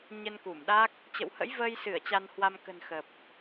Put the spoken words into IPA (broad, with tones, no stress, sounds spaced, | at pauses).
ɲ ə˧ n k u˧˩ m ɗ a˦˥ k̚ | t͡ɕ ə̰˧˨ w h ə̰˧˥ j v əː˧ j s ɨ˧˩ ə̯ t͡ɕ a˧ n h w a˧ m k ə̤˨˩ n x ə˨˩ p̚